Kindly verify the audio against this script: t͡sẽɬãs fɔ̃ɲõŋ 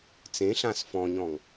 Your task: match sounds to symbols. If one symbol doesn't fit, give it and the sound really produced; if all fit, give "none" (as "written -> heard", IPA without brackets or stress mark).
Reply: õ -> ɔ̃